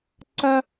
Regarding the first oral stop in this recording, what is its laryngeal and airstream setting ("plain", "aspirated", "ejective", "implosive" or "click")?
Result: click